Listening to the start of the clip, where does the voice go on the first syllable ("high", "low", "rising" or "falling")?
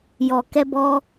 low